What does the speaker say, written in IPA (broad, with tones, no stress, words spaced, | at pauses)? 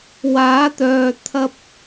waː˨˥t̪œː˨ t̪ʰɐ˧p̚